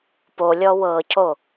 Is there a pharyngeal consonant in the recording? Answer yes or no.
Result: no